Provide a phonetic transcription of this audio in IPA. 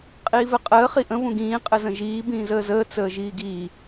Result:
qʼ iː v ɘ qʼ əː χ i ʔ ə̃ v ũ ɡ ĩː qʼ ɘ z ə̃ ʒ iː b ĩː z əː z əː t͡s əː ʒ iː ɡ iː

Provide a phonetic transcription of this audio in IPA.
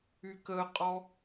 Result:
y k ə qʼ ɔ

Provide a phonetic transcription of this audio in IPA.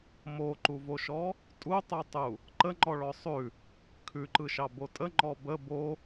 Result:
m o ǃ u v o ʃ ɔ | tʼ u tˤ u tˤ u | ǃ ə ŋ͡ǃ ɔ ɭ ɔ sˤ ʉ | kʰ ʉ ǃ ɯ ʃ ɑ b o tʼ ə ŋ͡ǃ ɔ b ə b o

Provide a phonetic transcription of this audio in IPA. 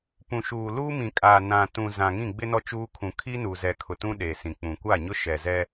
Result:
p ũ˨ ʃ uː˨ l uː˦ m ĩ˨ kʼ aː˨ n ã˨ t ũ˨ z ã˨ ŋ ĩ˦˨ ɡ͡b ɪ˦ n ɔ˦ t͡ʃ uː˦ kʰ ũ˨ kʰ iː˦ n uː˨ z ɛ˨ kʰ ʊ˨ t ũ˦ ɗ eː˨ s ĩ˨ k͡p ũ˨ kʷ a˦˨ ɲ ʊ˦ ʃ ɛ˨ z ɛ˦

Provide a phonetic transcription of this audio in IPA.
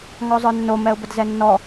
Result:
ŋ ɔ zˤ ə˞ nː o m ɛ ʊ̯ b ə d z ɛ nː ɔ

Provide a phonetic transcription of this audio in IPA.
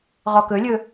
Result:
ʁ ɔ k ɵ lʲ ɵ

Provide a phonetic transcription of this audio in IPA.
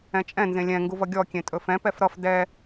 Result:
ɛ̃ t͡ʃʼ ɛ̃ n z ẽ lʲ ɛ̃ ŋ ɡ u v ʌ ɡʲ ɔ kʲ ẽ tʼ ɵ f ɛ̃ p ɛ f ɾ ʌ f d ɛ

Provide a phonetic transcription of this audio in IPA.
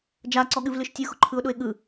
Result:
d͡ʒ a ǀ ɔ ɠ ɨ v l ɨ ʃ tʲ ɯ x ʊ ǃʰ ɯ ʊ̯ ɗ ʊ ɪ̯ ɠ ɯ

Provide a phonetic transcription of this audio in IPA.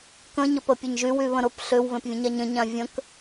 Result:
k ə̃ ɲ ə p ə pʲ ə ɲ ʒ y w y β ə̃ ɾ ʊ p ɬ ʏ w β ẽ p vʲ ə̃ ɲ a ɲ ə̃ ɲ ã vʲ ə̃ k

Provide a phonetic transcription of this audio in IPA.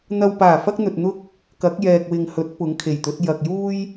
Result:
n̪ ɐ˨ w p aː˨˩ f ɐ˥ k̚ n̪ ɵ˨ t̚ n̪ ʊ˥ k̚ | k ɐ˨˥ k̚ j ɛː˨ k̚ w ɪ˨ ŋ h ɵ˨˥ t̚ p ʊ˨˥ ŋ kʰ e˨˩ j t̪ ɵ˨˥ t̚ j ɐ˨ k̚ j uː˥ j

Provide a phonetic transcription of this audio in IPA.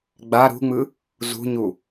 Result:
ɡ͡b a ɾ ṳ ŋ͡m ɯ | z ṳ ɲ u

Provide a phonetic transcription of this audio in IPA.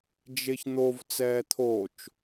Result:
d͡ʒ e ç n̪ o v t͡s ɛː t̪ʰ o t͡ʃ

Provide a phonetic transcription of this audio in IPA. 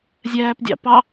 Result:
zʲ æː p dʲ ɑ̰ p ɑ

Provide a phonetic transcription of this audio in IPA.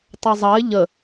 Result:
tˤ ɛ zˤ ɐ ɪ̯ ʎ ə

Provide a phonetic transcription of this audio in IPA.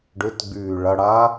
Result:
ɖ ʏ t ɡ͡b yː ɭ ɐ ɽ a

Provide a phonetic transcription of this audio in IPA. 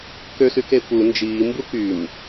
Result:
k ø s y k e p u n d͡ʒ iː m b u k y m

